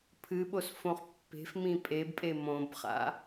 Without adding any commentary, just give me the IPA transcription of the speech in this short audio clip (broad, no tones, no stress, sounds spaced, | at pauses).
pʰ ɨ ɓ o s f õ χ pː e̤ f m ĩ pʼ e b pʼ e m õ b χ a̰